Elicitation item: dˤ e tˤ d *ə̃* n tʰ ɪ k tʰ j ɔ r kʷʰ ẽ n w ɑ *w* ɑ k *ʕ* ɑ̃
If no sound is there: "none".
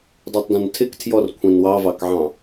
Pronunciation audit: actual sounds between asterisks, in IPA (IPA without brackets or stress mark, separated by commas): ɐ̃, v, ʕ